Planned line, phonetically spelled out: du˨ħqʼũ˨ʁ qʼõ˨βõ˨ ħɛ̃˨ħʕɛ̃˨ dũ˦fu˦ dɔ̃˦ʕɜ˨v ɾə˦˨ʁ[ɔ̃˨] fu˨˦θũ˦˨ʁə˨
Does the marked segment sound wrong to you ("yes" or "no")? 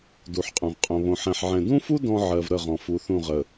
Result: no